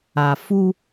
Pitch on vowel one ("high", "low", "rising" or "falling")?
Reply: low